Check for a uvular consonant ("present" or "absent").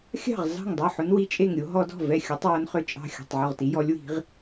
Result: present